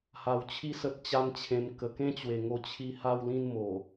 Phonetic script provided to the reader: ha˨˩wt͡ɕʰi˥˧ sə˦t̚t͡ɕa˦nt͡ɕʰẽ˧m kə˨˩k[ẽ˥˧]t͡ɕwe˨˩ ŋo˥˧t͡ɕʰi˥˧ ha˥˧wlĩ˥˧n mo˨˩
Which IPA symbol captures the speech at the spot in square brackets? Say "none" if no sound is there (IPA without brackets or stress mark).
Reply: ẽ˥˧